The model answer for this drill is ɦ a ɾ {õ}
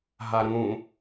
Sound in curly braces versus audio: incorrect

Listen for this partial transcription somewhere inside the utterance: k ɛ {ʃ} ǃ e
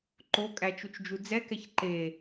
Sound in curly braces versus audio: incorrect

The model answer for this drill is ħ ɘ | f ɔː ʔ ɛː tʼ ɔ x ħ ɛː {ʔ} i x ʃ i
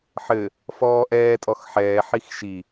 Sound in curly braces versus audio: incorrect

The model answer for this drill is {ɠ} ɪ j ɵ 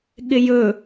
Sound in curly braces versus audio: correct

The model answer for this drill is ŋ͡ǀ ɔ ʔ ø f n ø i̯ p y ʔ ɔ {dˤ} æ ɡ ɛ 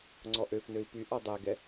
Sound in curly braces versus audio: correct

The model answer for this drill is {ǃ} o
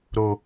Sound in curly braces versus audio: incorrect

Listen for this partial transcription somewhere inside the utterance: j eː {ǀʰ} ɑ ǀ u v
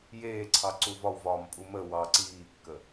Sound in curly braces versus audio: correct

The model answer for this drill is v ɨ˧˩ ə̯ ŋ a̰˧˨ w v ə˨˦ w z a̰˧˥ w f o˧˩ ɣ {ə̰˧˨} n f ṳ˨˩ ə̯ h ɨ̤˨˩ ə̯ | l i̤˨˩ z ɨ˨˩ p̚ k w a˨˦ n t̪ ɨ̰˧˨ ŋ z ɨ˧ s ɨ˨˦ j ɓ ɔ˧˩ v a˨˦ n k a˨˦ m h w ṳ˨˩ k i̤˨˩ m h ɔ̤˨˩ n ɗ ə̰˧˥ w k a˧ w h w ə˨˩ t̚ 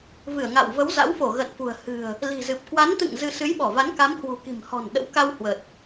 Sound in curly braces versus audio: correct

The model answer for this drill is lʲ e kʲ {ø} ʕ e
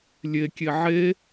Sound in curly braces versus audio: incorrect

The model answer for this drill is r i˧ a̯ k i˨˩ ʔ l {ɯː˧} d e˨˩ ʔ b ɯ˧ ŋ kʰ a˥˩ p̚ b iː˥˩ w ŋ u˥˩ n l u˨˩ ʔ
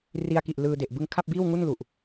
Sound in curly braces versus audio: correct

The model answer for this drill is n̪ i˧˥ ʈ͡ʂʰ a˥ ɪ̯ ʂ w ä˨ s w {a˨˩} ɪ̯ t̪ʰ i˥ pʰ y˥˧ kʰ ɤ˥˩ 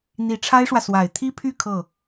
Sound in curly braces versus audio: correct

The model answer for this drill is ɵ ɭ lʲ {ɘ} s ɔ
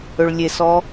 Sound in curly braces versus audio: incorrect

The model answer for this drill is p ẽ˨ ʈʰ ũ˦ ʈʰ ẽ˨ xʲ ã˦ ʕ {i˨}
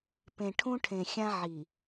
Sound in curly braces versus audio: correct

